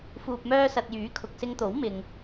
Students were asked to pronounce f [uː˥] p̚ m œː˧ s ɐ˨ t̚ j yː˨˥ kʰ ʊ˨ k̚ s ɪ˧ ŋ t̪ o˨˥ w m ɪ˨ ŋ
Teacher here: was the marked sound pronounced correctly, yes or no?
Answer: no